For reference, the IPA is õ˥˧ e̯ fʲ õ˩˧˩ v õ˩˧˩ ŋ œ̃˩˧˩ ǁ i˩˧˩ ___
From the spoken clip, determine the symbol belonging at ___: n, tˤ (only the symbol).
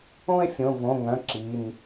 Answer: n